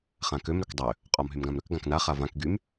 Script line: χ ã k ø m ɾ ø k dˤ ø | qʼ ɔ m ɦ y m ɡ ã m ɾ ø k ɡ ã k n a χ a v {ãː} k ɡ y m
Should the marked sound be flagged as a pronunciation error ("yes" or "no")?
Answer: yes